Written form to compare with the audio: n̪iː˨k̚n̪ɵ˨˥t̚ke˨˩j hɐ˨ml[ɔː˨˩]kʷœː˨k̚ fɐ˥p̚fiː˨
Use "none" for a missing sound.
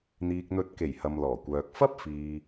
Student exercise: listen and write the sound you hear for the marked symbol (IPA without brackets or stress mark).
ɔː˨˩